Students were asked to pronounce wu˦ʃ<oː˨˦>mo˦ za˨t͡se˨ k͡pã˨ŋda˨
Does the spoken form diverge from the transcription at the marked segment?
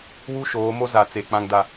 no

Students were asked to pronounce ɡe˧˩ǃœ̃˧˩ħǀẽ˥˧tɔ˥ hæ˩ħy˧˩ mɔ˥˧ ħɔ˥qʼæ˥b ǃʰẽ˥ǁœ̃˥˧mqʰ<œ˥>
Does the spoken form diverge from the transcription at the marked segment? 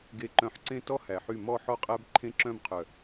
yes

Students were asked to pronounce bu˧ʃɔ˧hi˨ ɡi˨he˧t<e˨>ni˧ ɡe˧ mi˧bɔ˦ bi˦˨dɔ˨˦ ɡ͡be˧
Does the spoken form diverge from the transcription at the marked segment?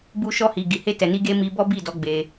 yes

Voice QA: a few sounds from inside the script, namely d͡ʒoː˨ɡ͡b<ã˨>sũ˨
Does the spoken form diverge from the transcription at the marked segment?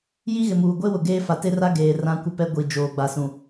yes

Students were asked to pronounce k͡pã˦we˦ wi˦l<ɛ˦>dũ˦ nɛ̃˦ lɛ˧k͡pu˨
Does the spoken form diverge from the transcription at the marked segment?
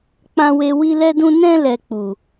no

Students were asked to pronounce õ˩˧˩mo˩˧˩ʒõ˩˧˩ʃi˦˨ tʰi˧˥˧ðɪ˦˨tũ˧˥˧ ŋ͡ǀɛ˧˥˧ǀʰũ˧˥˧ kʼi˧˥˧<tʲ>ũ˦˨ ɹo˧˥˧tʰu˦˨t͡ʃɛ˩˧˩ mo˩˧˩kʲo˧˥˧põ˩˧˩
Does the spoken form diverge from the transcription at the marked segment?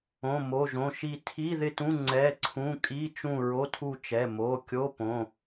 yes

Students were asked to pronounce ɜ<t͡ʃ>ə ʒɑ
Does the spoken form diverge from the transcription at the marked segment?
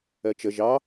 no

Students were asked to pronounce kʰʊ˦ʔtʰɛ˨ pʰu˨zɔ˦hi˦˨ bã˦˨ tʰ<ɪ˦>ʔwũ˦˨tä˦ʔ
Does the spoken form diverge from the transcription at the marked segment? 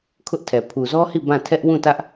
yes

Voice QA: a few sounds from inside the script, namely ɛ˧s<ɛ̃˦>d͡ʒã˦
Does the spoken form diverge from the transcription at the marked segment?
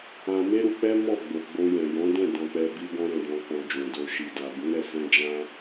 no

